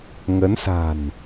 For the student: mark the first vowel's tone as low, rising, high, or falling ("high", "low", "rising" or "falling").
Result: rising